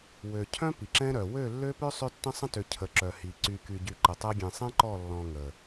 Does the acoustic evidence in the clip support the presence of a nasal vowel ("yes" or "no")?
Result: yes